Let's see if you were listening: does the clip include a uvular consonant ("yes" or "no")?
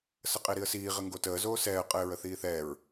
yes